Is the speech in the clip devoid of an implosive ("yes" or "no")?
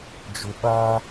no